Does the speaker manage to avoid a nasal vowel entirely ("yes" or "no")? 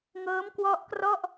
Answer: yes